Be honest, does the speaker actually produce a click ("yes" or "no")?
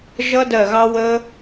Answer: no